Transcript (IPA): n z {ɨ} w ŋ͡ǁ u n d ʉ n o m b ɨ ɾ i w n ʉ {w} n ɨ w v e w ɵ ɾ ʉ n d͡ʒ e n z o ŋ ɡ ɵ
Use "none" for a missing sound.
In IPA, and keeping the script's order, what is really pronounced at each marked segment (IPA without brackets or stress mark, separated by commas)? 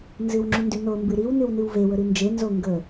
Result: ɨ, w